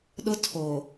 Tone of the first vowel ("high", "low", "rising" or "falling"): high